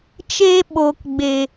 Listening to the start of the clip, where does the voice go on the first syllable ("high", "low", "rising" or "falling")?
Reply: high